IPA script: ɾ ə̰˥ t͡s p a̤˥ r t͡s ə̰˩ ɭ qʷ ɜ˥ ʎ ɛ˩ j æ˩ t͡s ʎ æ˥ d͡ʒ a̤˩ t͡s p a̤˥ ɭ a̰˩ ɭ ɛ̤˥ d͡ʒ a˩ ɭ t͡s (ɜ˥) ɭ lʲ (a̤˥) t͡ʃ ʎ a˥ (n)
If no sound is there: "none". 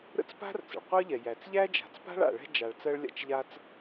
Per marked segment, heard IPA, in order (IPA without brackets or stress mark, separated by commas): ɜ˥, a̰˥, t͡s